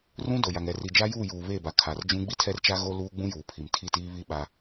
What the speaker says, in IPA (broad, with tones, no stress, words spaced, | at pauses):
rũ˦do˨ja˨ŋ ɛ˨ri˨ d͡ʒa˦juː˦˨juː˨ βeː˦˨ba˨kʰa˨rd͡ʒũ˦ ɡ͡bi˦tʰɛ˦rt͡ʃa˦ ɣo˦luː˦ɡ͡bũ˦juː˨ pʰi˨mtʰi˦˨tiː˦βi˦ ɓa˦